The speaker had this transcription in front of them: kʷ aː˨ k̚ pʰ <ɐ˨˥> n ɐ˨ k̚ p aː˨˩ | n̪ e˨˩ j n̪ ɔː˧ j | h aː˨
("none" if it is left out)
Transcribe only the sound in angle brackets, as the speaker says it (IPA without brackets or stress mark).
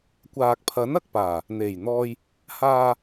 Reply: ɐ˨˥